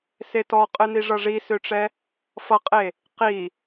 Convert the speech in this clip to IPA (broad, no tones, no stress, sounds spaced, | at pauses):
s e t ɔ qʼ ɨ n i ʐ ʌ ʐ i s ø ʈ͡ʂ ɛ | f ʌ qʼ e | q i